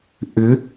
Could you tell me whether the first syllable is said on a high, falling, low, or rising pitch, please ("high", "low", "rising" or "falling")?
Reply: rising